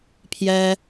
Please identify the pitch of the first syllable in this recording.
high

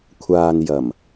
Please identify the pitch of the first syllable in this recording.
low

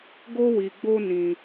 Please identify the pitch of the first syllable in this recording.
high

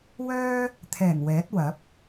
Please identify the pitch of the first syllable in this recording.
high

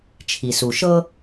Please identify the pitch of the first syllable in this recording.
low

